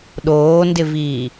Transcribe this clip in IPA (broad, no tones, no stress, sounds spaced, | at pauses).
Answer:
ɗ oː n d ɪ v iː